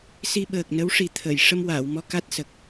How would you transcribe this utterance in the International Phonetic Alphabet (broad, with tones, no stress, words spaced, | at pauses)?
si˧ ɓəː˨˩k̚ nə˧˥wʂi˨˩ t̪ʰə˨˩˨j ʂə˧mwaː˨˩˨wmɔ˧ ka˦˥t̚sə˨˩k̚